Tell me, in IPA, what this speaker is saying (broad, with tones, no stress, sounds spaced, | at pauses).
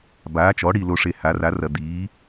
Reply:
b aː˩˥ t͡ʃ ɔ˩˥ ɽ i˨ l o˨ ʂ e˨ h a˩˥ r a˩˥ r ɐ˨ d̪ iː˩˥